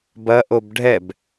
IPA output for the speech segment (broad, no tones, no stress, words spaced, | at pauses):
bɐʔob ɖʱɛb